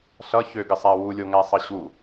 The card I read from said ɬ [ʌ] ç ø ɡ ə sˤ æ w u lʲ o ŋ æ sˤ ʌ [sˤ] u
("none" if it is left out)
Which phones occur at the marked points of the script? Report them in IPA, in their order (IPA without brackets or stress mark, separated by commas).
ʌ, ɕ